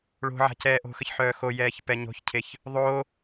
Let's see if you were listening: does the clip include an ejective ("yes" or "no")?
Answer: no